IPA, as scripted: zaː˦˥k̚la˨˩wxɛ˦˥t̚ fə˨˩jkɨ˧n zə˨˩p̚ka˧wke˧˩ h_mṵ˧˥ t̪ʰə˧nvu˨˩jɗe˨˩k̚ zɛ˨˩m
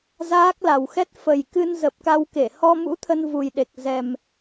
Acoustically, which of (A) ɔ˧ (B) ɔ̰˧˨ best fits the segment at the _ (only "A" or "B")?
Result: A